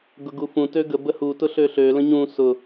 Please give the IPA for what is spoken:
ɡ ʊ ɡ u f ũ t ø ɡ ə b ə h u t ʊ ɬ ø ɬ ø l ə̃ ɲ ũ s ʊ

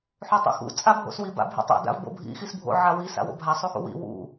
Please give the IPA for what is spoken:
ħ o tˤ o̰ x ṵ t͡sʼ a bʱ o̰ s w i b a̰ bʱ ḭ tˤ o̰ d a̰ v b o̰ bʱ ḭ x i s bʱ o̰ ʕ a w i s a̰ w o̰ bʱ a sˤ u x ṵ w ḭ w ṵ

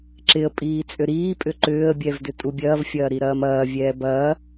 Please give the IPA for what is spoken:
ǁ ɪ ə̯ pʼ iː t͡sʼ ʏ ɾ iː pʼ ʏ ǃ ʏː ə̯ bʲ ɛ v d ʏ tʼ u bʲ ɐː v fʲ ɐː ɾ i ɾ ɐː m ɐː vʲ ɛː b ɐː

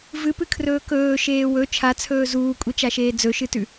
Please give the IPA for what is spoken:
v ɨ p ɨ kʰ r ɵː k ɵː ʃ eː w ɵ t͡ʃʰ a t͡sʰ ɵː z uː kʷʼ i t͡ʃ a ʃ eː d͡z ɵ ʃ ɨ t ʉ

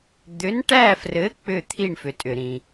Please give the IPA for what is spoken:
d̪ ʏ˩˥ n ʈ æ˥˩ f r ɘ˩˥ k͡p ʏ˥˩ t̪ʰ i˥˩ ɳ f ʏ˩ tʼ ʏ˩ ɾ ĩ˩

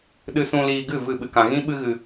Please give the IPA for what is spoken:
ɗ ɨ˧ s ũ˧ l iː˧ ɡ ɨ˦˨ v ɨ˦˨ ɓ ɨ˧ k ã˧ ɣ ĩ˦ ɓ ɨ˦ ɣ ɨ˧

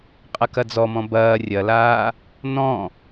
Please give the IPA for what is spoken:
qʼ ɐ k ɐ d͡z ɔ m ɔ̃ b ɐː rʲ ɐ l aː | n ɔ̃

